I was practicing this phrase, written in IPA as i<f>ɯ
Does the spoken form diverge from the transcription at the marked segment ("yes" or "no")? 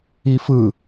no